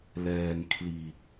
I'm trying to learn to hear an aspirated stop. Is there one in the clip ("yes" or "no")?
yes